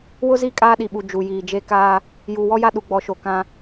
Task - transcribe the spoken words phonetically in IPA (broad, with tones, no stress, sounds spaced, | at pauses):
w ʊ˦ z i˦˨ kʼ aː˦ ɗ i˨ ɓ u˨ d͡ʒ u˨ j iː˨ d͡ʒ e˦ k aː˦ | j uː˨ w ɔ˦ j a˦ ɗ u˨ ɡ͡b ɔ˨˦ ʃ o˨ k ã˦